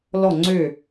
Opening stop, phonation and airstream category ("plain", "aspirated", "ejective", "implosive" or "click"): click